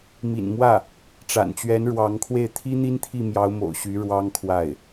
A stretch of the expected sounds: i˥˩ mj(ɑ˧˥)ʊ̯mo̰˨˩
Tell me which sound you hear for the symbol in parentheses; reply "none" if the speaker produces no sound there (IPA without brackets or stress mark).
ɑ˧˥